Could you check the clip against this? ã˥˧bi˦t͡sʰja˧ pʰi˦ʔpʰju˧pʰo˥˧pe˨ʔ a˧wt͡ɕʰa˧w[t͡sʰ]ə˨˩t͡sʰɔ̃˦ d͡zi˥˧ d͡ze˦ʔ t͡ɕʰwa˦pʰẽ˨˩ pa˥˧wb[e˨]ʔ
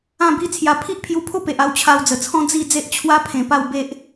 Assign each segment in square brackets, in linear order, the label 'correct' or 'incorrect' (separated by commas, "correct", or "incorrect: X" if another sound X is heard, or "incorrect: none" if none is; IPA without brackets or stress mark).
incorrect: d͡z, incorrect: e˦